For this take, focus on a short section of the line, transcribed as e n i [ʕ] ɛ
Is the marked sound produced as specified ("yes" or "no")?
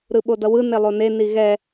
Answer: no